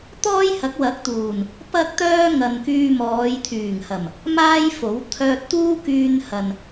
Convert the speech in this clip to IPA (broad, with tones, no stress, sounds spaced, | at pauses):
t̪ ɔː˥ j h ɐ˨˥ k̚ w ɐ˨˥ k̚ t̪ uː˨˩ n | p ɐ˥ k̚ t̪ œː˥ ŋ ɐ˨ n k yː˧ m ɔː˨˧ j t̪ʰ yː˨˩ ŋ h ɐ˨˩ m | m aː˥ j f o˨˥ w t̪ʰ œː˧ t̚ t̪ uː˥ k yː˧ n h ɐ˨ n